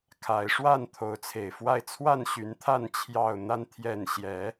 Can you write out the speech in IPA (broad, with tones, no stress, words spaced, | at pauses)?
kʰa˨˦ɪ̯ ʂwa˥˨n t̪ʰo˨˦ʊ̯t͡sʰe˨˩ɪ̯fwa˥˨ɪ̯ t͡sʰwa˥˨nɕy˨˦n t̪ʰa˥˨n t͡ɕʰjɑ˥˨ʊ̯ n̪a˦n t̪ʰjɛ˥˨n ɕjɛ˨˦